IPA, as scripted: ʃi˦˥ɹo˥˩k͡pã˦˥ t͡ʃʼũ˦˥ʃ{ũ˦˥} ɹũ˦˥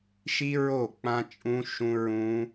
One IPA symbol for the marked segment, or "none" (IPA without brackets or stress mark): ũ˦˥